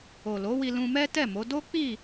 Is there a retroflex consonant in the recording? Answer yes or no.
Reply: no